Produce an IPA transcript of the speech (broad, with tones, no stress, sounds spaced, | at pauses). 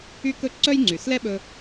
y˥ k ɵ˥ ǀ œ˥ j ŋ͡ǀ y˩ s l ɛ˥ ɓ ɵ˥